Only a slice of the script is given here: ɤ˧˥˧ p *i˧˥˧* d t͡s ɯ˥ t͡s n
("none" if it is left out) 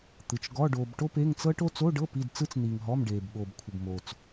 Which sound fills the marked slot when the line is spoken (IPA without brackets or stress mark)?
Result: i˧˥˧